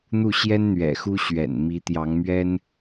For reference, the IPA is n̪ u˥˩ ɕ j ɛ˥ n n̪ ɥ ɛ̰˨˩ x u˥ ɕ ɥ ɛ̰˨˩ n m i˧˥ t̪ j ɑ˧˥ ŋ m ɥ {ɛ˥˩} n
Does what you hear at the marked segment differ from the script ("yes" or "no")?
yes